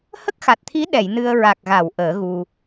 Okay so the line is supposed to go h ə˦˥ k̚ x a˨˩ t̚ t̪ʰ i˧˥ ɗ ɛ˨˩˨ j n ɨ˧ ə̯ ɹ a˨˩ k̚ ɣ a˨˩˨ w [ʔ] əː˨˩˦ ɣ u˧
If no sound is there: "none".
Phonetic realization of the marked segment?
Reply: ʔ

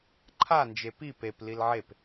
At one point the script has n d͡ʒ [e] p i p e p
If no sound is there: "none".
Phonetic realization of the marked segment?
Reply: e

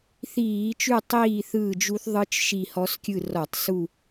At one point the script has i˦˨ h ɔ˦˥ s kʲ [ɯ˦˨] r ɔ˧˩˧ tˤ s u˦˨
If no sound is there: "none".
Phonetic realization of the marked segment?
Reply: ɯ˦˨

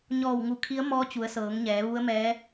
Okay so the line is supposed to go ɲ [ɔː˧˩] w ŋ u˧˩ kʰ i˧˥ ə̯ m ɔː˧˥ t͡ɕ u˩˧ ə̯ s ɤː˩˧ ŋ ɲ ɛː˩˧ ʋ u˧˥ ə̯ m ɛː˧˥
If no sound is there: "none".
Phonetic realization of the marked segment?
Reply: ɔː˧˩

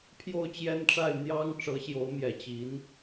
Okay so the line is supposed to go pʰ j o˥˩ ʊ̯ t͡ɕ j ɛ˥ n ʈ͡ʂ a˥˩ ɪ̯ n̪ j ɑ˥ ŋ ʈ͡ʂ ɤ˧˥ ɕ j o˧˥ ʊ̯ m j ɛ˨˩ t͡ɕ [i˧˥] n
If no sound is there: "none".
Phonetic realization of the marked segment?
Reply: i˧˥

